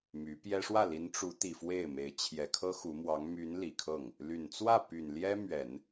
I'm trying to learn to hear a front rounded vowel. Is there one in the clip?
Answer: yes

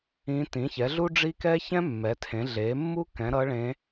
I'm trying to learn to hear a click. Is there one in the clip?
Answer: no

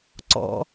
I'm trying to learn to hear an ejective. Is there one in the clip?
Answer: no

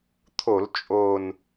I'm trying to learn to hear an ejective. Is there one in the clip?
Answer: yes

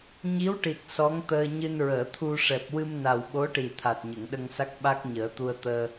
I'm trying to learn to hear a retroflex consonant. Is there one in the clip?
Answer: yes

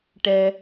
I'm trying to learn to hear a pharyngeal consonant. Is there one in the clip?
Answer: no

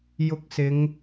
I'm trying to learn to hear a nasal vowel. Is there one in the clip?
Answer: no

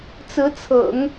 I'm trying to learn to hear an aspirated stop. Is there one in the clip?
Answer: yes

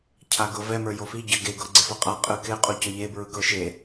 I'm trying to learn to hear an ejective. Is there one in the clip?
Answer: yes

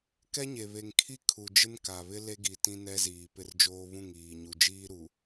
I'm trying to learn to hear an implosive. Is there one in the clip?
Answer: no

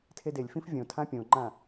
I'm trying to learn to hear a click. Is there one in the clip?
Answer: yes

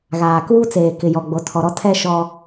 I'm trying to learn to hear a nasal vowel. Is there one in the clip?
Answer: no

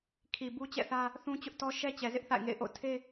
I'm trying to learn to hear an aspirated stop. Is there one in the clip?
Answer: yes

